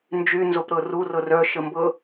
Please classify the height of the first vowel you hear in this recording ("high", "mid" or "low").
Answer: high